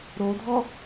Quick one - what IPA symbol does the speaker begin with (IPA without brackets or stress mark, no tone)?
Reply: ɾ